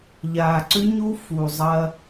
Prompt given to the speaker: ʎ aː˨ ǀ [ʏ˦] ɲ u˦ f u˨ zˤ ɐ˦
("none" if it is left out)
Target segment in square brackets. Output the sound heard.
ʏ˦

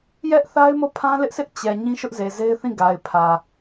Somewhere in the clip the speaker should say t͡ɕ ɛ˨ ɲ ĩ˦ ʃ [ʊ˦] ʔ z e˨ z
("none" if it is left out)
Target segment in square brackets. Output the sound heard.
ʊ˦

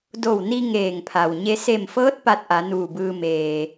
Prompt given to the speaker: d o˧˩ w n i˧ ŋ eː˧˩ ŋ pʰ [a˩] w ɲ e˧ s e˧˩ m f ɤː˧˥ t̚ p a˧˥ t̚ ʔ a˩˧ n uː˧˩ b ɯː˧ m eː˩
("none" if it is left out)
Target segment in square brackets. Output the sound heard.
a˩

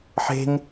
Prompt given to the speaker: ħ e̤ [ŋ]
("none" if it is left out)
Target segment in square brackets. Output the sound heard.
ŋ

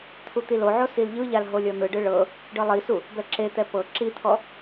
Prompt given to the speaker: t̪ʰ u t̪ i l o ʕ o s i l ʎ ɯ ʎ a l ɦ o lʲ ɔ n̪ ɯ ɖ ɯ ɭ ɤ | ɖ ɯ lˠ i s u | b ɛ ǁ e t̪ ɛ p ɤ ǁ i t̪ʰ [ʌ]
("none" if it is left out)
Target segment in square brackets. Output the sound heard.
ɔ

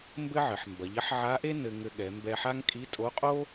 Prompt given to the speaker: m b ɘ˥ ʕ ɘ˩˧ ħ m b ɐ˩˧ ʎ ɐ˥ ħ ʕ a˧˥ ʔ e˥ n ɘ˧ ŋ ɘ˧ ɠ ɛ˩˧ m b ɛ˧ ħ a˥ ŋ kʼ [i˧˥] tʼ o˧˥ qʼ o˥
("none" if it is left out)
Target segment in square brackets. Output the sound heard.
i˧˥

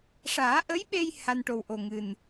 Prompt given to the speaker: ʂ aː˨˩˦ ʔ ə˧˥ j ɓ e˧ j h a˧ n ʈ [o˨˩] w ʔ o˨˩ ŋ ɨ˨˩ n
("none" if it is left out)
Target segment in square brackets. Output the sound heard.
o˨˩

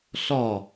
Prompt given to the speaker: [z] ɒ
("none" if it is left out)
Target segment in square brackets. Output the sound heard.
ɬ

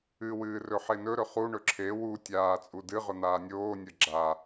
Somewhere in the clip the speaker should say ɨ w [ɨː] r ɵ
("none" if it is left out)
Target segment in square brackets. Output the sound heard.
ɨː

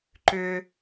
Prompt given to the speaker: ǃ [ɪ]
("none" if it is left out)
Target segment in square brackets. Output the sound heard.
ʏ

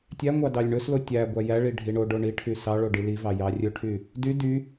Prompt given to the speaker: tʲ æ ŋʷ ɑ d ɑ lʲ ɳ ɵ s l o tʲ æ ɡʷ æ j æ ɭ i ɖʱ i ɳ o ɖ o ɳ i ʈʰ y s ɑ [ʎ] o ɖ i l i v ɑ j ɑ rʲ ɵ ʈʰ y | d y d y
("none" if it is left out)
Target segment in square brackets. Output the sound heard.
ɭ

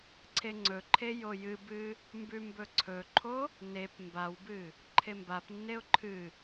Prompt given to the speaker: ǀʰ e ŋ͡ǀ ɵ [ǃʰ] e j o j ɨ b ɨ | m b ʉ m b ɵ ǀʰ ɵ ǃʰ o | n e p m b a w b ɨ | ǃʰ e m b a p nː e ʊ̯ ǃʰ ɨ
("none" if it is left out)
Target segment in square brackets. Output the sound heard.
ǃʰ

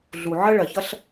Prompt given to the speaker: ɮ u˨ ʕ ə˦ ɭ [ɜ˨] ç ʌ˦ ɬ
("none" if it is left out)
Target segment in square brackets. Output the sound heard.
ɜ˨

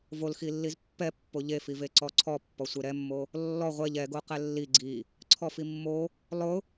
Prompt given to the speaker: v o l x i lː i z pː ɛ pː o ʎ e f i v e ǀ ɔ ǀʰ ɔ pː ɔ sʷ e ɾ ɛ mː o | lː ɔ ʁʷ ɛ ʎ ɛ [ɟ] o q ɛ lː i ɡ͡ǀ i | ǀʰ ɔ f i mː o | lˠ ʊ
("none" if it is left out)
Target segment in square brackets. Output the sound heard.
ɡ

